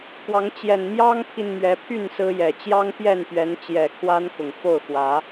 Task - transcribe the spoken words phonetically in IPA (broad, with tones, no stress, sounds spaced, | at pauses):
k w ɑ˨˦ ŋ t͡ɕ j ɛ˨˩ n m j ɑ˦ ŋ pʰ i˨ n m ɥ ɛ˨˦ pʰ y˥˨ n s ɹ̩˦ j ɛ˨˩ t͡ɕ j ɑ˦ ŋ p j ɛ˥˨ n p ɥ ɛ˨˦ n t͡ɕ j ɛ˨˩ kʰ w a˦ n k ʊ˨˩ ŋ f o˥˨ ʊ̯ x w ä˨˦